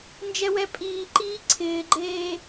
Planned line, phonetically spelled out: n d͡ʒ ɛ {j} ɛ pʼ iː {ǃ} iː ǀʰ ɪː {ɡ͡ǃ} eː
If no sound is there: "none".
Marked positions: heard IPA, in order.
w, ǃ, ɡ͡ǃ

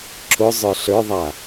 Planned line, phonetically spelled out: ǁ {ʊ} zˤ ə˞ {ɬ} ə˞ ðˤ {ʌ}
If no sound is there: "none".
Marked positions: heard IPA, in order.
ʊ, ɬ, a

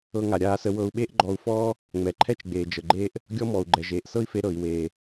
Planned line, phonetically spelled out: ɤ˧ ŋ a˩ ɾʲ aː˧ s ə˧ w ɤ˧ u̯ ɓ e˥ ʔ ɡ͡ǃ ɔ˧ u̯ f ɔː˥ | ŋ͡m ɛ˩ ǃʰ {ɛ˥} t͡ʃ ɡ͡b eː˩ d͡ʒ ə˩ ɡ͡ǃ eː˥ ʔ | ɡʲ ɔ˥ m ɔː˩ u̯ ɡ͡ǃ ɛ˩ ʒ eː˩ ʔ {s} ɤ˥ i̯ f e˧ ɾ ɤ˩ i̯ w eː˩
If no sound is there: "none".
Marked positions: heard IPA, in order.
ɛ˥, s

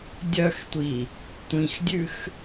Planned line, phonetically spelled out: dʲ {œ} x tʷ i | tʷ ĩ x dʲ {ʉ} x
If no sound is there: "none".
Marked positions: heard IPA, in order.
œ, ʉ

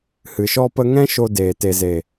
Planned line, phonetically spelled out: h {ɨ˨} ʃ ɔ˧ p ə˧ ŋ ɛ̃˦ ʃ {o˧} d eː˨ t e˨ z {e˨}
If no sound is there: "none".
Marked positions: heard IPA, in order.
ɨ˨, o˧, e˨

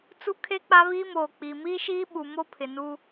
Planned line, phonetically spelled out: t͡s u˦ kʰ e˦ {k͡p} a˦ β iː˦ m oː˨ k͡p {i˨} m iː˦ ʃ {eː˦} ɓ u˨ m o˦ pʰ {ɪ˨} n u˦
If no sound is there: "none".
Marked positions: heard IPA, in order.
k͡p, i˨, iː˦, ɪ˨

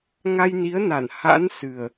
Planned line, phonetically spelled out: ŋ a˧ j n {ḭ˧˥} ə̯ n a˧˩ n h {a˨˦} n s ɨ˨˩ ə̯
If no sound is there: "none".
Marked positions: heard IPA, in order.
i˨˦, a̰˧˥

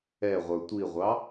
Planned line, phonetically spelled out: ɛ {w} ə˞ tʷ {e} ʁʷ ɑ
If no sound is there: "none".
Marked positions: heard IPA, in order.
ʁʷ, i

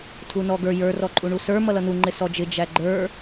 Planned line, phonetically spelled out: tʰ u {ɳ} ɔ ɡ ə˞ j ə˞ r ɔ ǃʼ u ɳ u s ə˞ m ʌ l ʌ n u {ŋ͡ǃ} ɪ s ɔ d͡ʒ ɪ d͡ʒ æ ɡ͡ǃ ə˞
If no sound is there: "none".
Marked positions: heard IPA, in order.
n, ŋ͡ǃ

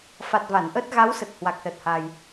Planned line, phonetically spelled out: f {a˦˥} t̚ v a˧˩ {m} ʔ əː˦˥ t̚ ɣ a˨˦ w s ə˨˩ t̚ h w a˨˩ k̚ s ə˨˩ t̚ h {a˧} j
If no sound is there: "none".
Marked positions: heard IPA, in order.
a˨˩, n, a˧

